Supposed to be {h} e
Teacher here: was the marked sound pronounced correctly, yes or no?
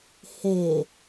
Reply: yes